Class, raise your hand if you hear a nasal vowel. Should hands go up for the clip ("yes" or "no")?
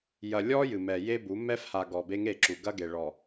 no